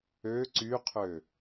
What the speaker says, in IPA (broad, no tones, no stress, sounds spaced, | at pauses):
ø ǀ y qʰ ø